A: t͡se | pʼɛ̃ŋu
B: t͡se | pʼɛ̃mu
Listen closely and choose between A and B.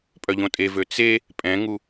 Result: A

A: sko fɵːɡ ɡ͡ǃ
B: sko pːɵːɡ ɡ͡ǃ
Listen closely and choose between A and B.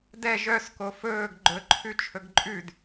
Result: A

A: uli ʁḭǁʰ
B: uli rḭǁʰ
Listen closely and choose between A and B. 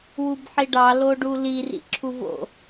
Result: B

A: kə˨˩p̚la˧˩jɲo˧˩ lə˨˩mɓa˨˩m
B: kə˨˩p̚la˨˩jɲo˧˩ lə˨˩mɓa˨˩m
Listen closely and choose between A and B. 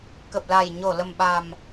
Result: B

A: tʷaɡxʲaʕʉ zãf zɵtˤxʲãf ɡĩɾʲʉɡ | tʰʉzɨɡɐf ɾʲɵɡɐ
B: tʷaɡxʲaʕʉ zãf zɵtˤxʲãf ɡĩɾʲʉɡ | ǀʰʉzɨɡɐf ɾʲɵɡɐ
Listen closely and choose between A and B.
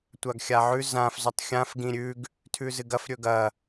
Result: A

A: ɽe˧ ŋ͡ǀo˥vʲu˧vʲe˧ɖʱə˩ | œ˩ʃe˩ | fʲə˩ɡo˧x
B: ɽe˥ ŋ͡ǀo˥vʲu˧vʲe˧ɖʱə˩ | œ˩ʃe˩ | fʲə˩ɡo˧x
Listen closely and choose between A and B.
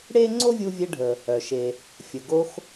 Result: B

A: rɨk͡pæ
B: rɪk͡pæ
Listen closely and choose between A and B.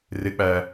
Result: B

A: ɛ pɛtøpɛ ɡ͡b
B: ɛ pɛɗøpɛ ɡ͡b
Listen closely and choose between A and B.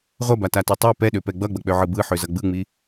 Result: B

